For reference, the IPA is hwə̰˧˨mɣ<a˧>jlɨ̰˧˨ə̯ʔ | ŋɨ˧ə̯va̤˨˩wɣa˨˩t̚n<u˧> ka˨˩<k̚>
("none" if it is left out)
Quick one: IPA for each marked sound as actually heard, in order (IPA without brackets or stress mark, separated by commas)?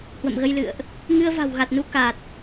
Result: ə˧, u˧, t̚